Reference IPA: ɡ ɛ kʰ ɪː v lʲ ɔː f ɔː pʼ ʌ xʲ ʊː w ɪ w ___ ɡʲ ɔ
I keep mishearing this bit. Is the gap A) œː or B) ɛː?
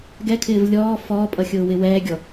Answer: B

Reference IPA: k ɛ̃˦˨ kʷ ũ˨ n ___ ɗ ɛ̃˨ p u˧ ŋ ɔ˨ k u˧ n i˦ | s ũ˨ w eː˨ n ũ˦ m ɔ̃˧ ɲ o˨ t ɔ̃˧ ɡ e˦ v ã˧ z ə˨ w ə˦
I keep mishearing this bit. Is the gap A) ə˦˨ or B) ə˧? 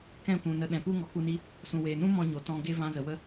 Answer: B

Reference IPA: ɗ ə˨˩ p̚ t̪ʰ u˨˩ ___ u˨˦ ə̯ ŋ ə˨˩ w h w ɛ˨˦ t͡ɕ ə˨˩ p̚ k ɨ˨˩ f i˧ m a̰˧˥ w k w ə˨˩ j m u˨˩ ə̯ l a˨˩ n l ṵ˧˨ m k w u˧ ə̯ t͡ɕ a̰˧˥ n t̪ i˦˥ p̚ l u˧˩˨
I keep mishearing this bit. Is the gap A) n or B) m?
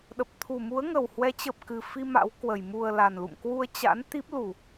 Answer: B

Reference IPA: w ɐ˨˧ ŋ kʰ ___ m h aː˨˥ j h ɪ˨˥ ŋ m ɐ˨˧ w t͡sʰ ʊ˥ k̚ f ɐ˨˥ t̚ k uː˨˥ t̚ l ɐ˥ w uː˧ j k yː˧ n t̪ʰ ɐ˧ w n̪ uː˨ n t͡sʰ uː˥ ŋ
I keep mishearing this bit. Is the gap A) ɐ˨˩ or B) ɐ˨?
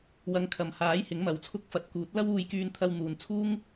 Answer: B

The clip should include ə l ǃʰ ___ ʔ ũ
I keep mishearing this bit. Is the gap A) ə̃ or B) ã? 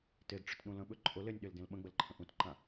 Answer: A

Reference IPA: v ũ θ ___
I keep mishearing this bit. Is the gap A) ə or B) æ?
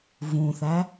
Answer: B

